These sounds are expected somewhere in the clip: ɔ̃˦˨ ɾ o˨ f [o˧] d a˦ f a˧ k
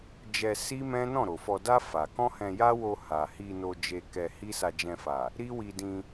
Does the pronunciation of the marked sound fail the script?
yes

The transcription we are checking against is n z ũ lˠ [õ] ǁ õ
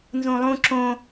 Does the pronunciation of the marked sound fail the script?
yes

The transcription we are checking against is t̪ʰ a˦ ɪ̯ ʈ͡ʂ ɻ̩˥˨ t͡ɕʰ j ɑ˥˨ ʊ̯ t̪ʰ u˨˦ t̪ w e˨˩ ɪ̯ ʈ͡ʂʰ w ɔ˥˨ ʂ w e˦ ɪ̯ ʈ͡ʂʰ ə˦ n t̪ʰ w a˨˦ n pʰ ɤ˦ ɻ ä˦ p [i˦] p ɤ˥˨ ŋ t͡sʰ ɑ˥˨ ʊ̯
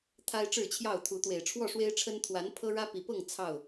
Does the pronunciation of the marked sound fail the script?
yes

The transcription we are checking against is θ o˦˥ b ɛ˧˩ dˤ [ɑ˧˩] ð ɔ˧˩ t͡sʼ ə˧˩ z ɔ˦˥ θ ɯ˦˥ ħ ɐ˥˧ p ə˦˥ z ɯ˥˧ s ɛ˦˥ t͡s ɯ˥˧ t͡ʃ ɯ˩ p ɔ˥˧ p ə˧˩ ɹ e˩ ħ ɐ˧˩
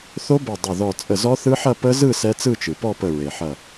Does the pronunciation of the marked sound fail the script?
yes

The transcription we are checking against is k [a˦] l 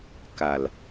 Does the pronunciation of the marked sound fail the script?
yes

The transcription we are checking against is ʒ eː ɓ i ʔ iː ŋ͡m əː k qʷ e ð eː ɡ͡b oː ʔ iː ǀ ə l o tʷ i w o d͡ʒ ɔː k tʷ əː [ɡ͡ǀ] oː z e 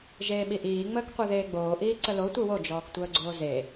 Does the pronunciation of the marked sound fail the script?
no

